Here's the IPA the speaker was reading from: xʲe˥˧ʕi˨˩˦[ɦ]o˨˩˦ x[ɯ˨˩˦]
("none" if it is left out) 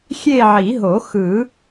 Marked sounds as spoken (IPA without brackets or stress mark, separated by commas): ɦ, ɯ˨˩˦